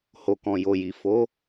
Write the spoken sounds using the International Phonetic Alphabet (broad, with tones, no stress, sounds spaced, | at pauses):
h o˨ k ɔ̃˨ j o˨ j i˨ f o˨˦